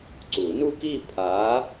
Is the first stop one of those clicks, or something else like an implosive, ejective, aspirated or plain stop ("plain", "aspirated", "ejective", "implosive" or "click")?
click